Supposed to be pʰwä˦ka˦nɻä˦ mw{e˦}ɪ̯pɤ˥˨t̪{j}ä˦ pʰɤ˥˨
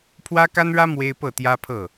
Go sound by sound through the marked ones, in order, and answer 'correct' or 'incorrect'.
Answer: correct, correct

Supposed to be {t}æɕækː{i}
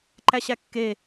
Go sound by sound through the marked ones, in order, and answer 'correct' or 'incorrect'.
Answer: incorrect: ǃ, incorrect: e

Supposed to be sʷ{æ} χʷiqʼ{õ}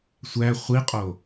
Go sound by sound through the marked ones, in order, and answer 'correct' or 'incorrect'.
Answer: correct, incorrect: o

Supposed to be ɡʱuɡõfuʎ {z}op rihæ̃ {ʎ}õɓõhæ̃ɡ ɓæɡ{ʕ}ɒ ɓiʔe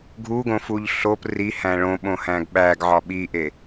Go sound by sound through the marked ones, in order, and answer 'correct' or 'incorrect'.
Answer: incorrect: ɬ, incorrect: ɭ, correct

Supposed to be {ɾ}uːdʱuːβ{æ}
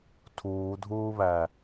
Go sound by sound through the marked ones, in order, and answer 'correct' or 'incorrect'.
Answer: incorrect: tʰ, correct

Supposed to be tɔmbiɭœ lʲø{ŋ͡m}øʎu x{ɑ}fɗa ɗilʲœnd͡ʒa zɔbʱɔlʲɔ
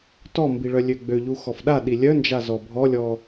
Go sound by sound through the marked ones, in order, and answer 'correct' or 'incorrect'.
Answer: incorrect: ɡ͡b, incorrect: ɔ

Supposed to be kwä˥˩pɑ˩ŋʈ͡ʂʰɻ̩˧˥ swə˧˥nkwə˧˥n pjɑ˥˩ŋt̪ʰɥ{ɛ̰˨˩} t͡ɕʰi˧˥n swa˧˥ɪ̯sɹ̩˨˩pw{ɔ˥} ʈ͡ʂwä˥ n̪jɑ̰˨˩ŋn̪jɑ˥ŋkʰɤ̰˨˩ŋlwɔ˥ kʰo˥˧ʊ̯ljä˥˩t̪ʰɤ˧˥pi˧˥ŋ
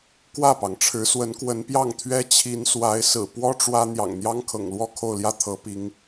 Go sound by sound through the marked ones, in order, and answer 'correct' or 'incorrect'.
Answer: incorrect: ɛ˥, correct

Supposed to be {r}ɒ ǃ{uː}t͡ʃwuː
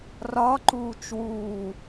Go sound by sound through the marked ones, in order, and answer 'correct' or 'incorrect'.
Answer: correct, correct

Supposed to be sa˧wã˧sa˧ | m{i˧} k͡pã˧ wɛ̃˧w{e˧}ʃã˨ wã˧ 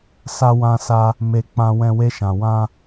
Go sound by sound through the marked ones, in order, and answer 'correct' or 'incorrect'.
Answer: incorrect: e˧, correct

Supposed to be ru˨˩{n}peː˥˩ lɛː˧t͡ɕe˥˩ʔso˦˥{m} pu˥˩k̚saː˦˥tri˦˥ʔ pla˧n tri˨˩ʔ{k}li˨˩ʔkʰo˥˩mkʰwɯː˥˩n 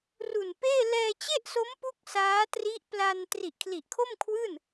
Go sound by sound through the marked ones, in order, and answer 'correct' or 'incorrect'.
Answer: correct, correct, incorrect: kʰ

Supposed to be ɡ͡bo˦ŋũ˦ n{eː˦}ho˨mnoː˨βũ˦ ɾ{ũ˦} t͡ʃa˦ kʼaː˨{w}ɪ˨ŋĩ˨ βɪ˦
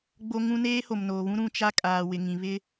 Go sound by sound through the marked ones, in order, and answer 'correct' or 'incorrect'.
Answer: correct, correct, correct

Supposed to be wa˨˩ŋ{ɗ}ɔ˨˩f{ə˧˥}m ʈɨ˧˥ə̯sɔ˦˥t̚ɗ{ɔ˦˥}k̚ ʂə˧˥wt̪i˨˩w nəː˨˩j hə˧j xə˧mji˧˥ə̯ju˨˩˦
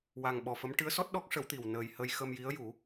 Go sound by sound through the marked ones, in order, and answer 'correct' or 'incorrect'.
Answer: incorrect: ɓ, correct, correct

